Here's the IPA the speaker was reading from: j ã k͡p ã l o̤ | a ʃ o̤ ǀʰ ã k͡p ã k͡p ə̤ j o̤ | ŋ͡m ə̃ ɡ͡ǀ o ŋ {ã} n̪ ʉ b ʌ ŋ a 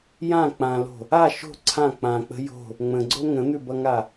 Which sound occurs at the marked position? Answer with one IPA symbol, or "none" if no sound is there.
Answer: ə̃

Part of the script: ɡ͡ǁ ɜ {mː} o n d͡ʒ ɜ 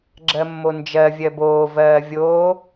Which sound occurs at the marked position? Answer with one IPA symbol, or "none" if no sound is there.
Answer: mː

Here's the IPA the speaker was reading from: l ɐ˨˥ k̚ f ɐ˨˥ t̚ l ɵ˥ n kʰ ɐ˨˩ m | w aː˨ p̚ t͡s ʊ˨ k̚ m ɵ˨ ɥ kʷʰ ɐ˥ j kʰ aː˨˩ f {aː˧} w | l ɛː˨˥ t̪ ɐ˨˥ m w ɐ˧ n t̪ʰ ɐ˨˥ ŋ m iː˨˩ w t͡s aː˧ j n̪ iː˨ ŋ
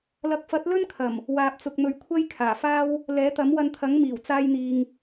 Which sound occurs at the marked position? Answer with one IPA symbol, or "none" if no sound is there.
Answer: aː˥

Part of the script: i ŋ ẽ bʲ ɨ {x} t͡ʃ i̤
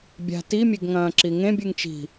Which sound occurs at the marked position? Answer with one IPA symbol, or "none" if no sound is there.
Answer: ŋ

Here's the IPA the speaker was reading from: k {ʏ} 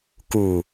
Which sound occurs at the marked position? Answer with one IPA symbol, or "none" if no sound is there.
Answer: u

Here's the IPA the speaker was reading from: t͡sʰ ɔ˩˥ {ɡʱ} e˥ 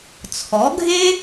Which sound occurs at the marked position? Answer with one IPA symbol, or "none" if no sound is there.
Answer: ɡʱ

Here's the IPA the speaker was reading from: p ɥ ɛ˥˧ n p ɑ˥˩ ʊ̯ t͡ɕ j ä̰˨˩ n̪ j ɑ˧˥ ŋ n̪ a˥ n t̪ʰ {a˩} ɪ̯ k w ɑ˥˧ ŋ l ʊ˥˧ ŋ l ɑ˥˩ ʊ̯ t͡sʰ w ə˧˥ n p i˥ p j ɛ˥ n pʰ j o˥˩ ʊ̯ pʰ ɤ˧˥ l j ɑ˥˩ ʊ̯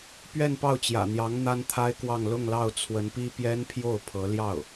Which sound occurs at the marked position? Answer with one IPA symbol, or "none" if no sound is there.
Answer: a˥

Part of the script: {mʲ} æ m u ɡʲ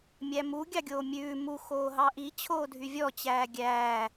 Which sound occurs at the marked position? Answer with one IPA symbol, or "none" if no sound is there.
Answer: mʲ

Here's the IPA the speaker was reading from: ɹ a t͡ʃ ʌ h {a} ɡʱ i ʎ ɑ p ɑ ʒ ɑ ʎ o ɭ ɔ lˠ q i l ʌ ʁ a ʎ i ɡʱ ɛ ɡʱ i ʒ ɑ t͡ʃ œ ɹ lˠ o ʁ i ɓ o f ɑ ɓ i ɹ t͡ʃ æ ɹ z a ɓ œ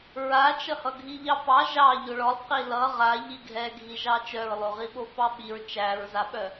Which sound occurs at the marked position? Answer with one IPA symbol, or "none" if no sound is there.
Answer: ʌ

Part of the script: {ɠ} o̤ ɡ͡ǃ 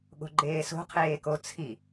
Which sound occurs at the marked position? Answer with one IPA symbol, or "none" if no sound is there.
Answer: ɠ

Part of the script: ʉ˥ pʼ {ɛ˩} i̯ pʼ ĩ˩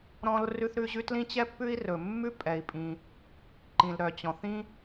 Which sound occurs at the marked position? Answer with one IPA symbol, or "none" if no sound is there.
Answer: ɛ˩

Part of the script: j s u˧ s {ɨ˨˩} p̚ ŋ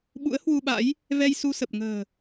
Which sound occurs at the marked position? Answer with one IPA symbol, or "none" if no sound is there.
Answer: ə˨˩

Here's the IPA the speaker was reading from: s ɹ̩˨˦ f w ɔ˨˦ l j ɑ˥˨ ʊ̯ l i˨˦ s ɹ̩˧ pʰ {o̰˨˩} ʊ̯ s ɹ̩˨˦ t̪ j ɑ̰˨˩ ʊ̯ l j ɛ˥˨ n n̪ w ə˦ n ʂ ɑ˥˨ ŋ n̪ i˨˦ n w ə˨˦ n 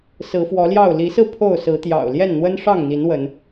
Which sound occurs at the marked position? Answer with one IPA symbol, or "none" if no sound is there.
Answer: o˥˨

